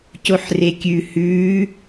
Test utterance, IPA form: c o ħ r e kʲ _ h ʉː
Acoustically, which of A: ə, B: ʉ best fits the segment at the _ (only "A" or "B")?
B